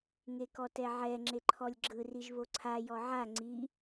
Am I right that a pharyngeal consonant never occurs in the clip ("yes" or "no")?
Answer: no